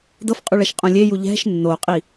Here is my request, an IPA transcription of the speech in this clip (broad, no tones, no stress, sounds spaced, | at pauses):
d ɤ f qʼ u ɭ ɛ ʃ qʼ õ lʲ e j u ʎ ɛ̤ ʃ nː o qʼ i